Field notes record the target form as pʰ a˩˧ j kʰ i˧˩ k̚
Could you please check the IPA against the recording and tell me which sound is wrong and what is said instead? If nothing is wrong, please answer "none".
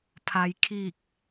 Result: none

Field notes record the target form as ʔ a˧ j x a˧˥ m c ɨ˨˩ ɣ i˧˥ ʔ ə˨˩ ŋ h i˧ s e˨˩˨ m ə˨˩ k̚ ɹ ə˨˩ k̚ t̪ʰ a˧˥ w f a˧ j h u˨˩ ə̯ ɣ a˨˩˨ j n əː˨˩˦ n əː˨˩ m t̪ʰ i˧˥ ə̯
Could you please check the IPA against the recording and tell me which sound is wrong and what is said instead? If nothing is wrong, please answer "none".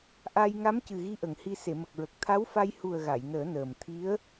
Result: x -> ŋ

